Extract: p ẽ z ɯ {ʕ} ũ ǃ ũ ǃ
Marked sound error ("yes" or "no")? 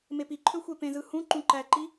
yes